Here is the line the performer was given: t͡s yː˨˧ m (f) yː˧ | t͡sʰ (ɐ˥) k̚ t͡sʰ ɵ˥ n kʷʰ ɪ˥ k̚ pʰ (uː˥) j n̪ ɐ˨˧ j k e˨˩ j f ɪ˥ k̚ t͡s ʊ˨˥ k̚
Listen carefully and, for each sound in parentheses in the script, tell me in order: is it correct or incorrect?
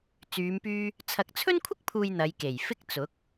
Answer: incorrect, incorrect, incorrect

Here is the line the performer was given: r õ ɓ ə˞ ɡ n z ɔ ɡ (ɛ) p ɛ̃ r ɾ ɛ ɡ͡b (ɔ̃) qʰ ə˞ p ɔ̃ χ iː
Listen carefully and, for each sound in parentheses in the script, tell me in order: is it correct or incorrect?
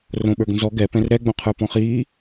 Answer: correct, incorrect

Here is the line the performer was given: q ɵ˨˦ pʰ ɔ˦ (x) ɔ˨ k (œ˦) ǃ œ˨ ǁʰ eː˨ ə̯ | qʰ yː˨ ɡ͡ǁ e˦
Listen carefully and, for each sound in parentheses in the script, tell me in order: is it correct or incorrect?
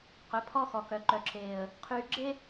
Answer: correct, incorrect

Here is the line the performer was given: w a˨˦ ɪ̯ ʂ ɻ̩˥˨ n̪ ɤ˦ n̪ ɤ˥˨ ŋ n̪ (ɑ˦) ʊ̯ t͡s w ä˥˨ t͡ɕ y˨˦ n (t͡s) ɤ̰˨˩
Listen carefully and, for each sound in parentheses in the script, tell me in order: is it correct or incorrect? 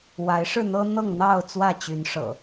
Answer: incorrect, incorrect

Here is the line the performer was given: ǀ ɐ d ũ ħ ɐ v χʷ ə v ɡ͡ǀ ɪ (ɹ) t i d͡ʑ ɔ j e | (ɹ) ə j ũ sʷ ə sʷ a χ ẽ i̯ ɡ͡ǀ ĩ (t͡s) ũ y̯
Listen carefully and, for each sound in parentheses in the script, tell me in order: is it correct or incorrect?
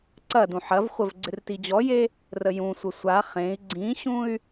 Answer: incorrect, incorrect, incorrect

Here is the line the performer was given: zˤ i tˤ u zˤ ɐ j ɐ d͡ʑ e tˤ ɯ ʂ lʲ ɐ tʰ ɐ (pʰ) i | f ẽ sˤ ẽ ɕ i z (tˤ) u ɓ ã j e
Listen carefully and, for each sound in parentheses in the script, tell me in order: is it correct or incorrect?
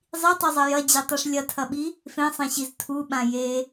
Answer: incorrect, incorrect

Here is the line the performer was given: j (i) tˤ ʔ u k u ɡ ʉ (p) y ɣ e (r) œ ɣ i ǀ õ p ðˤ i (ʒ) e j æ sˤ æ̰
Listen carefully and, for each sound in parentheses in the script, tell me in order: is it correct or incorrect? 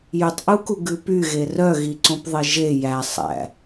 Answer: incorrect, correct, correct, correct

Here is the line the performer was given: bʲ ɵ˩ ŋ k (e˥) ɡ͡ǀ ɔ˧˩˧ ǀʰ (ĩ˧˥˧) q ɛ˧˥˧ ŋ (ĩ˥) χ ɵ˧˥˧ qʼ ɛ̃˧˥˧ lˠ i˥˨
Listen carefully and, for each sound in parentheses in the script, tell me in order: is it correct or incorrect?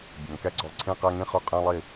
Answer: incorrect, correct, correct

